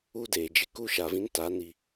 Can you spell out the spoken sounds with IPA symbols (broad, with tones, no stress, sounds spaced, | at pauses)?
u˦ d eː˨ d͡ʒ ɪ˦ k u˦ ʃ a˨ v ĩ˦ n t a˨˦ n i˦